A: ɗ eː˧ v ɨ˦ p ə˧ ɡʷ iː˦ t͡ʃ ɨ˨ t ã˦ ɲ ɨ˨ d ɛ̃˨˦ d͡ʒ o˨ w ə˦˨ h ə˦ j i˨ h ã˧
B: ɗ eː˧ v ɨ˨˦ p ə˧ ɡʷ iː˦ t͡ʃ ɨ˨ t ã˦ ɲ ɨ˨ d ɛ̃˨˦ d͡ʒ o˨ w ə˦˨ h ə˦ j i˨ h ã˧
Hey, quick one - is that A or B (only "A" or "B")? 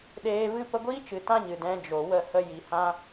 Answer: A